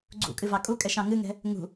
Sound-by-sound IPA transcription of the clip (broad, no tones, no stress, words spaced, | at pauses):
ɡ͡ǀṵkʼɨvɑ kʼukʼɛʃɑ̃ ŋɨŋɛ̤ | ŋṳ